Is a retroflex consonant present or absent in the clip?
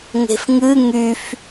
absent